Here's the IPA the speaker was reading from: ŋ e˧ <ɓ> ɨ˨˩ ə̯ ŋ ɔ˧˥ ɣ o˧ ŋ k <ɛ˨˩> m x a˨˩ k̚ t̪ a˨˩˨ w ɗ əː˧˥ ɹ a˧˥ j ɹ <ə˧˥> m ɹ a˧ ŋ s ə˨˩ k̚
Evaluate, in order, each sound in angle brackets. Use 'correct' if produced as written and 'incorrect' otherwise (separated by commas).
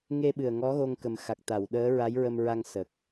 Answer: correct, incorrect, incorrect